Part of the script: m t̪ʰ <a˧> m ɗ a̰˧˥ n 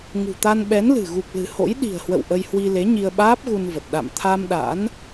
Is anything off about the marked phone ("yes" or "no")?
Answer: no